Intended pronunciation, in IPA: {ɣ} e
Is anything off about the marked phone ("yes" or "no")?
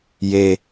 yes